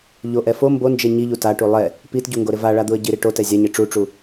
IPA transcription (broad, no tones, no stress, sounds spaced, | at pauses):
ʎ o ʔ ɛ f o m b o n d͡ʒ e ɲ i ʎ u t a ʈ u lˠ ɛ | p i t ɟ u ŋ ɡ o ɾ ɪ v a ɭ a d̪ u ə̯ ɟ i ɾ i ʈ o t ɛ zʲ a ɲ e ʈ͡ʂ u ʈ͡ʂ u